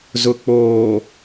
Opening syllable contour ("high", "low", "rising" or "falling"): low